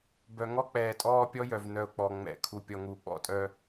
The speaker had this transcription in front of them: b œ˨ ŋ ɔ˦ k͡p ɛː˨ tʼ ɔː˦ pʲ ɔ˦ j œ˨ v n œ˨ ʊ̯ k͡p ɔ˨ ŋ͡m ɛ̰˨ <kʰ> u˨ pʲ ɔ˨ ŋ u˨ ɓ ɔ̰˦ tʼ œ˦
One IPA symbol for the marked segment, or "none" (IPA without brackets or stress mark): kʰ